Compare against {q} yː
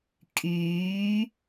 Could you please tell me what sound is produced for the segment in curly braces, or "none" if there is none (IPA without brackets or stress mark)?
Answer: kʼ